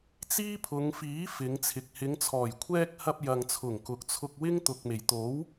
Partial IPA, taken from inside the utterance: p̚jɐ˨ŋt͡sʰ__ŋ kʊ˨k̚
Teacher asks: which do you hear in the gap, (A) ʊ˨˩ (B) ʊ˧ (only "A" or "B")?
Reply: A